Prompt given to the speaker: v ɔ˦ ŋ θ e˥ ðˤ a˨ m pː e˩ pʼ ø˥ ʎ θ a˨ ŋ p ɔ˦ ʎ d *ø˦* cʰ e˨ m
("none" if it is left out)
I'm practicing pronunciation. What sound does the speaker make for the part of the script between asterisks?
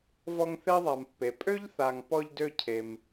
ø˦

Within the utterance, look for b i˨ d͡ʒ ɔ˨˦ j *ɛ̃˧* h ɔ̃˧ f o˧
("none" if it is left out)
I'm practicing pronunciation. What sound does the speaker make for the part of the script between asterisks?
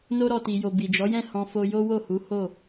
ɛ̃˦˨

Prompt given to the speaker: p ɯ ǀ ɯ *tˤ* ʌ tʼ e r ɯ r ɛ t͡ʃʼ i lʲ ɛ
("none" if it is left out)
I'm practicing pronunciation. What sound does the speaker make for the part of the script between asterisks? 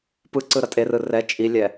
ɾ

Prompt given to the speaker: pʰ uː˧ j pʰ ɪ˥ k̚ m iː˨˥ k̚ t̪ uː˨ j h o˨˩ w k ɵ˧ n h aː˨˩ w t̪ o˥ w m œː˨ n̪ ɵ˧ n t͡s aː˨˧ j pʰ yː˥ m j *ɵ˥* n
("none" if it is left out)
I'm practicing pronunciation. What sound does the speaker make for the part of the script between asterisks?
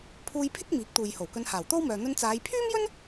ɵ˥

